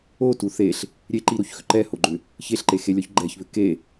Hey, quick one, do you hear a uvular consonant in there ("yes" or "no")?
no